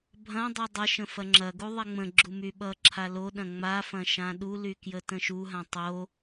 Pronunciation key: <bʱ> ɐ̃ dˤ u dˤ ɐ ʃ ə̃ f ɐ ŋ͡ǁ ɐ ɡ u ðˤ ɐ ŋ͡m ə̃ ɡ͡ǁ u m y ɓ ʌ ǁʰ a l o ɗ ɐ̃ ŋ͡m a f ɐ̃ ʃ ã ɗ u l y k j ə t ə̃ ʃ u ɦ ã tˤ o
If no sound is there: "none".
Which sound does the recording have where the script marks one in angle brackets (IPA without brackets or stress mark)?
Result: bʱ